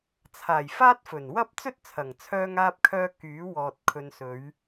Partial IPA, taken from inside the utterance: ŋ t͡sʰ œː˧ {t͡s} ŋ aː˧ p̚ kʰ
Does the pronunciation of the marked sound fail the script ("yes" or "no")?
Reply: yes